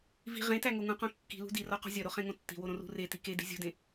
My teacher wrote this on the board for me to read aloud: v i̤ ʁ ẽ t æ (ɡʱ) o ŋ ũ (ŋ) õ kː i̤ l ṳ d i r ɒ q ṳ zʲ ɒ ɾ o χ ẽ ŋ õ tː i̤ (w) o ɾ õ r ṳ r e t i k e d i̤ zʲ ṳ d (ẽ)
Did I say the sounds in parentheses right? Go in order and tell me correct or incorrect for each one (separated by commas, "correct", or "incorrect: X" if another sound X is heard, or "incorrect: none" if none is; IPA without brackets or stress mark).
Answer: incorrect: ŋ, incorrect: q, correct, correct